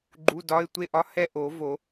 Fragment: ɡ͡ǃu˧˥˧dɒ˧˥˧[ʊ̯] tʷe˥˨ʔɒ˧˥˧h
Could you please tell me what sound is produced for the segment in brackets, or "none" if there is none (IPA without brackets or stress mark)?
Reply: ɪ̯